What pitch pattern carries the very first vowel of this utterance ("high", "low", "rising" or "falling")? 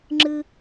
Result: low